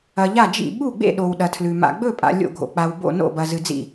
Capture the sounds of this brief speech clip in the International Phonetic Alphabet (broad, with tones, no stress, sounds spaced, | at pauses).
ɐ˨ ʎ a˥˩ d͡ʒ ḭ˥˩ ɓ u˥˩ ɡ͡b ḛ˥˩ ɗ o˨ w ɗ ɐ˨ tʰ l ʉ˨ m a̰˨ ɡ͡b ɵ˥˩ pʼ a̰˨ lʲ o̰˥˩ ɡʱ o̰˨ k͡p a˨ w b o̰˥˩ n o̰˥˩ b ɐ˨ z ɨ˨ d͡z ḭ˥˩